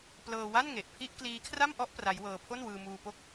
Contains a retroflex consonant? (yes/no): no